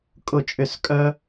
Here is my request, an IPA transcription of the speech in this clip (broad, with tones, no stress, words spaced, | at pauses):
kʼʊ˥˧t͡ʃʼʏ˥˧skʼœ˥